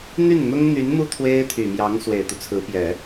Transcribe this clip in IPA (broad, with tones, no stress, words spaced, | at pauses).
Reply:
n̪y˥˩nn̪ʊ˥ŋn̪y˧˥nmu˥ t̪ʰwe˥ɪ̯t̪ʰy˨˩mjɑ˧˥ŋ swe˨˩ɪ̯t̪u˦t͡sʰɹ̩˧˥pjɛ˨˩˦